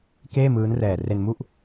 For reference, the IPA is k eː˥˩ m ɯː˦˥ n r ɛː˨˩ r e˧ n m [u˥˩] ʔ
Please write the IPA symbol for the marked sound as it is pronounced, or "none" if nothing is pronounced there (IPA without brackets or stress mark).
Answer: u˥˩